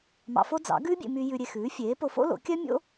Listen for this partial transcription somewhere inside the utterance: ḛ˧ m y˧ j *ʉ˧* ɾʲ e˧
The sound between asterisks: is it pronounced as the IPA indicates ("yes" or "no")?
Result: yes